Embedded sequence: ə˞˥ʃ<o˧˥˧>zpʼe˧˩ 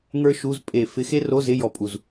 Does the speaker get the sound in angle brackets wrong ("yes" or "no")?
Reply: yes